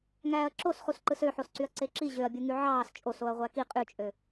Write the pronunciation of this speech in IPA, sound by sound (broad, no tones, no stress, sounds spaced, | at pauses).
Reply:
ŋ æː ɐ̯ ǁ o s χ u s ǃ ɯ s ø ħ o s ǀ y ɐ̯ ǀ e ǁ i ʑ ø ɐ̯ bʲ u ŋ y ʕ ɑː s t͡ʃʼ o s o ɐ̯ ʁʷ æ k i qʼ y t͡ʃʼ ø